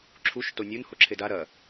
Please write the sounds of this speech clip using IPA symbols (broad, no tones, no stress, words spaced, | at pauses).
ǁʰuʃ tonʲun hoǁʰeda ɾɐ